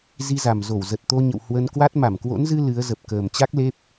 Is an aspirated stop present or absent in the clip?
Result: absent